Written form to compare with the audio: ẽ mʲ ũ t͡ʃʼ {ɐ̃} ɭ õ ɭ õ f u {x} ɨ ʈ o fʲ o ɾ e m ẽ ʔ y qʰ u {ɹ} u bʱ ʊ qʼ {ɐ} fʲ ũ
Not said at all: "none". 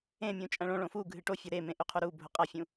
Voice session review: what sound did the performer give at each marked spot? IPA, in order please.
ɐ̃, ɡʱ, ɾ, ɐ

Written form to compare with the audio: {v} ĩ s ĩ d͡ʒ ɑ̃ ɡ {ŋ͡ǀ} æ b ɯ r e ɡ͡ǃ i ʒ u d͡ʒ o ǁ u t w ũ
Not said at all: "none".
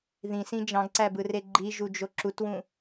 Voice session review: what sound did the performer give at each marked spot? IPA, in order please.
ð, ǀ

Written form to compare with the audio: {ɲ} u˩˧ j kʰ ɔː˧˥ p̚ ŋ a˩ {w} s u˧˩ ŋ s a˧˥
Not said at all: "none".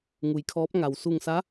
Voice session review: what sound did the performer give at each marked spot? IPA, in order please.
ŋ, w

